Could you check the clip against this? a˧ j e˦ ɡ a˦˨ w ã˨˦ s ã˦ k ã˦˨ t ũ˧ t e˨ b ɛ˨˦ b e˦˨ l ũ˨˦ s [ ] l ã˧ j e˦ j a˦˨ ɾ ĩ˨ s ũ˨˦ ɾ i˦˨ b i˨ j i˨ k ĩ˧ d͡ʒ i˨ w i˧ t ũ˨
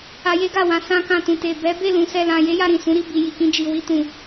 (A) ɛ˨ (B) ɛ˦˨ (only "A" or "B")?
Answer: B